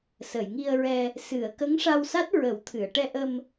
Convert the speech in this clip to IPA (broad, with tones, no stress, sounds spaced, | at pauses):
s ə˨˩˨ j ŋ i˧ ə̯ ɹ ɛ˧ | s ɨ˨˩˨ ə̯ k ə˧˥ ŋ ʂ a˧ w s a˦˥ t̚ ɹ ə˨˩˦ w t̪ʰ ɨ˨˩˨ ə̯ ʈ ɛ˧ ʔ ə˧ m